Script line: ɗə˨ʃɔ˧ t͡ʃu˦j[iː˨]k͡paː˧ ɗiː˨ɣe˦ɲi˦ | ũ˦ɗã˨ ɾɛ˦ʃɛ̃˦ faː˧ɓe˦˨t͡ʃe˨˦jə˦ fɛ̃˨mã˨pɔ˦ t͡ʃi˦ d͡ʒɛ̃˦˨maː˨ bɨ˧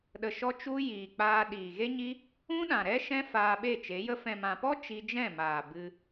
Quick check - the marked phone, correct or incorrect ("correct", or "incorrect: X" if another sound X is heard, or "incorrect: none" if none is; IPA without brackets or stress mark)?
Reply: correct